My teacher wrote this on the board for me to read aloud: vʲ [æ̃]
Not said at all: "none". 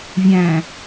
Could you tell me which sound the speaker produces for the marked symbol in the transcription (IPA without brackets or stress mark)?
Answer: æ̃